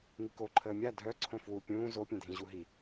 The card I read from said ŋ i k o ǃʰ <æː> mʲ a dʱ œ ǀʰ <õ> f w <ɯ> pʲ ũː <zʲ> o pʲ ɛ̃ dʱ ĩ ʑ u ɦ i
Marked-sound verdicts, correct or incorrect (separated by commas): incorrect, correct, incorrect, incorrect